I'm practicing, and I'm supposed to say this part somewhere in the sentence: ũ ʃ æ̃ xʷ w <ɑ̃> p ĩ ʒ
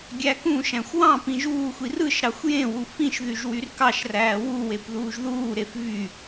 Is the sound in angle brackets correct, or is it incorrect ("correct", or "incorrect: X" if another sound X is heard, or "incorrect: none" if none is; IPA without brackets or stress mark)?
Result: correct